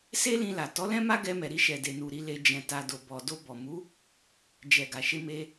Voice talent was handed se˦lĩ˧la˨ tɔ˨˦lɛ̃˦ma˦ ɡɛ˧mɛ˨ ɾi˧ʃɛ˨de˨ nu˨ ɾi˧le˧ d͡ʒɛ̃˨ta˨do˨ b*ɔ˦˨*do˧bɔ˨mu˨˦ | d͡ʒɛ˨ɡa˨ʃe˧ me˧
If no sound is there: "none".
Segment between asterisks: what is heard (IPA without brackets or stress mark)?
ɔ˨